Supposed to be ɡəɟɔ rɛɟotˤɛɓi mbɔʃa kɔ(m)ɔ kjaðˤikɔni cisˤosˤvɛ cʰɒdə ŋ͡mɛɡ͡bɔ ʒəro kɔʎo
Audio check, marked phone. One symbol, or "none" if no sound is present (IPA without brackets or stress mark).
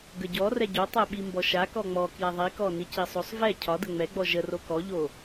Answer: ŋ͡m